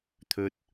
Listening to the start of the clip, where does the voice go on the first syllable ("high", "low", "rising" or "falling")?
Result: high